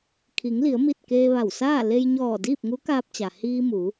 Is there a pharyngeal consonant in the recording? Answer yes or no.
no